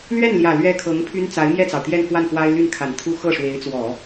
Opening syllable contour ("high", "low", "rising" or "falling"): falling